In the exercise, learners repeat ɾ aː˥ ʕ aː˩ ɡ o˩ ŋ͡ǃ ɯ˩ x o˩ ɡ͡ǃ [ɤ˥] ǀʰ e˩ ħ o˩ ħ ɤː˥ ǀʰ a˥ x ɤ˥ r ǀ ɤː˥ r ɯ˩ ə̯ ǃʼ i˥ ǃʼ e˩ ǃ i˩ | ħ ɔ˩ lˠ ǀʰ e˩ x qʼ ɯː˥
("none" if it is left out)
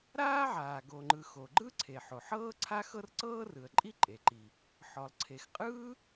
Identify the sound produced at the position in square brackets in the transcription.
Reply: ɯ˥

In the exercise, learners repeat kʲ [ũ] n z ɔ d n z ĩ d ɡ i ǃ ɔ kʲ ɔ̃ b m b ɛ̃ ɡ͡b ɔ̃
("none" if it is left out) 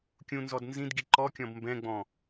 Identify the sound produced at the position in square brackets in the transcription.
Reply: ũ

